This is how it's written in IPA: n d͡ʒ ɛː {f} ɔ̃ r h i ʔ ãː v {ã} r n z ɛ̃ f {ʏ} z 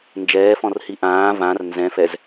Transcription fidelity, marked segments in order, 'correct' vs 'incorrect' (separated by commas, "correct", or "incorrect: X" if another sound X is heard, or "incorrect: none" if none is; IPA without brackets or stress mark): correct, correct, incorrect: ɛ